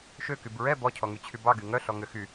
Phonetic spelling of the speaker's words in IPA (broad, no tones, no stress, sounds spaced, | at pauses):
ʃ ø k y b ɹ ɛ b ɔ cʰ ɔ ŋ y t͡ɕʰ y b ɑ ɡ y ŋ œ ɬ ɔ ŋ ø x y